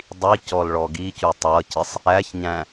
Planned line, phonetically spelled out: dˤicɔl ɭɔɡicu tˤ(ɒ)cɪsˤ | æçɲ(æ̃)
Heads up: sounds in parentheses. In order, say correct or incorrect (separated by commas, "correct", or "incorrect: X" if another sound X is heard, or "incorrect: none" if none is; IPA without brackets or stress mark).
incorrect: ʌ, correct